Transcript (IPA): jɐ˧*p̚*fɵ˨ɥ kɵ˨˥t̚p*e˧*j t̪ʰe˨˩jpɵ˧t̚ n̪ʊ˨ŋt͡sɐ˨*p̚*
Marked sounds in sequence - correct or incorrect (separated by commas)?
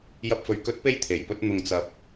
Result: correct, correct, correct